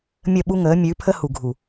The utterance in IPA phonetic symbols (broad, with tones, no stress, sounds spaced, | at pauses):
mʲ ə˦˨ ɓ u˦ ŋ əː˨˦ mʲ ʉ˨˦ pʰ ə˦ h u˨ ɡʱ u˨